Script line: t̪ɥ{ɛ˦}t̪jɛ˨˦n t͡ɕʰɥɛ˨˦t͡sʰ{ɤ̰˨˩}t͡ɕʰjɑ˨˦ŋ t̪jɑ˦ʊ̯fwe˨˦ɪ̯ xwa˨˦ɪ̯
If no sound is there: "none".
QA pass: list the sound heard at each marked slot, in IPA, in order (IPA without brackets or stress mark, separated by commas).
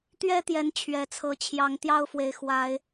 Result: ɛ˦, ɤ˨˦